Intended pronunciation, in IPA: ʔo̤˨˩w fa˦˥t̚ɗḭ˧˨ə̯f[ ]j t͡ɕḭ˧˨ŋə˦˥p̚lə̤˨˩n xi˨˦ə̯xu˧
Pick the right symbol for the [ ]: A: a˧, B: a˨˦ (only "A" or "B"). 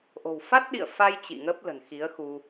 A